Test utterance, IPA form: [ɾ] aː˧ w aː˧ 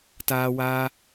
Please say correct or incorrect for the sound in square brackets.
incorrect: t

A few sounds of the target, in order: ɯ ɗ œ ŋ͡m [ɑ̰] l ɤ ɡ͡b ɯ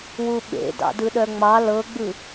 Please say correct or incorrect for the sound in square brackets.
incorrect: ɑ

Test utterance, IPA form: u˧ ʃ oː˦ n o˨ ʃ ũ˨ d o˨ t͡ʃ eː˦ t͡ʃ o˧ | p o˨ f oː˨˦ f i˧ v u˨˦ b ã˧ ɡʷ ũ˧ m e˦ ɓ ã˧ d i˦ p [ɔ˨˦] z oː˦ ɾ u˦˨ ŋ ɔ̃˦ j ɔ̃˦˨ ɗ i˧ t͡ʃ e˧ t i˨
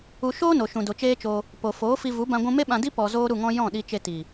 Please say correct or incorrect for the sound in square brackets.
incorrect: ɔ˧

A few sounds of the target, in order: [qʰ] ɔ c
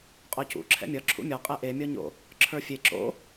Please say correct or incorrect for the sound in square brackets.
incorrect: qʼ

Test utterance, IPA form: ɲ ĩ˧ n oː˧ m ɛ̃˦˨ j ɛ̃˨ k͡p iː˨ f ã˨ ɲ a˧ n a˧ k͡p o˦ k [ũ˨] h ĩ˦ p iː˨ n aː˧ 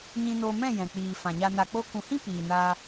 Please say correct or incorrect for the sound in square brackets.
correct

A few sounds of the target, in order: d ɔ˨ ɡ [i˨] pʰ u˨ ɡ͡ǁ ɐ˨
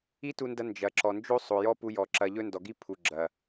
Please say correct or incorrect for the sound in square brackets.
incorrect: i˦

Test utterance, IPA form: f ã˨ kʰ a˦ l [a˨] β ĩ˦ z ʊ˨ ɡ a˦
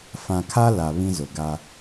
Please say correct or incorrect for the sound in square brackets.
correct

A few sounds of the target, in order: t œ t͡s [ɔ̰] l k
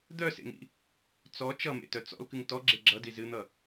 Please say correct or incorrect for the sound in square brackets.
correct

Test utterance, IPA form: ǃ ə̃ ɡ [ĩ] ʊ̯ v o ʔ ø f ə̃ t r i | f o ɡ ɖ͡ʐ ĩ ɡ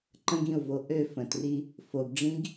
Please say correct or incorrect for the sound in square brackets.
correct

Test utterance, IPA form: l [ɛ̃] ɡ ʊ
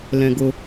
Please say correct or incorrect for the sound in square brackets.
correct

